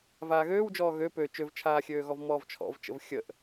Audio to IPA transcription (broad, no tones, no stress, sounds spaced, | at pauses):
v aː ɣ øː w d͡ʒ ɔː ɣ ø p ø t͡ʃ ø v t͡ʃʰ aː xʲ øː ɣ ɔ v m ɔː v t͡ʃʰ ɔ̰ v t͡ʃ ə̰ v xʲ ə ʔ